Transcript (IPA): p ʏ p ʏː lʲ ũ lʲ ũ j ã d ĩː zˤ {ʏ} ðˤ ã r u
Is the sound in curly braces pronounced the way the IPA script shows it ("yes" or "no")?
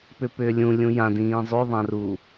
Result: no